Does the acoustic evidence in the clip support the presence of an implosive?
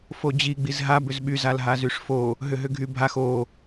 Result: yes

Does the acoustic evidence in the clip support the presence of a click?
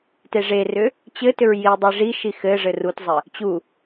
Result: no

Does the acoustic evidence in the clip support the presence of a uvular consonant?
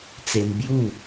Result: no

